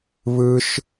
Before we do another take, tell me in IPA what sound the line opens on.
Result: β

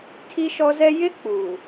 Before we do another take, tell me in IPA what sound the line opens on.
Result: tʰ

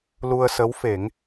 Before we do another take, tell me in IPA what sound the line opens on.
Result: l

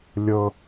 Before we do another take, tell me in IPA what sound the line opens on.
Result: lʲ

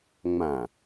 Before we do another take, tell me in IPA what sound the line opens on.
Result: ŋ͡m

